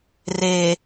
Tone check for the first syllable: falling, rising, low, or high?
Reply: low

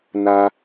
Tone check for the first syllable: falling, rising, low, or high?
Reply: high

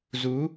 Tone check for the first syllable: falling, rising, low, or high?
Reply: rising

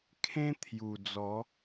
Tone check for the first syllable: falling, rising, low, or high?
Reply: high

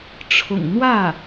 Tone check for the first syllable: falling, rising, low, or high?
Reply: low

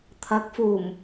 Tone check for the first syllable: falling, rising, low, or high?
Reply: rising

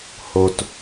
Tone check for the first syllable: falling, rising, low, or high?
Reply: low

